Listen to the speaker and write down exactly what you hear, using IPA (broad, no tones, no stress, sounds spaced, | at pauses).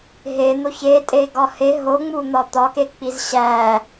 ɦ e n̪ o ç e tʼ e ɡ ɒ h e ɦ o ŋ͡m u n̪ ɒ t̪ ɒ k e k͡p i z ɕ æ